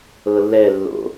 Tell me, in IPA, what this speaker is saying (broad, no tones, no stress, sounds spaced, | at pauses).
ɤ lː ɛ lː o̰